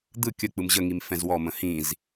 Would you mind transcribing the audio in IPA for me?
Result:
d̪ ɯ kʲ ə k͡p ɯ m ʑ ə ŋ i m f ɛ̃ z w ɔ m ə̃ h ĩ z

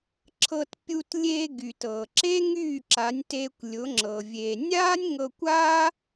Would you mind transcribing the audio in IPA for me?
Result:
ǁʰ ɤ˧ t pʲ u˧ t lʲ eː˧ ɡ y˨ t ɤ˨ ǁ e˦ ŋ yː˦˨ ǁ a˨˦ nʲ t e˧ kʷ lʲ ʊ˨˦ ŋ͡ǁ ɤ˨ vʲ e˨ nʲ aː˦ nʲ ŋ ɤ˧ kʷ a˦

